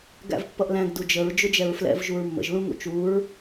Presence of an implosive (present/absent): absent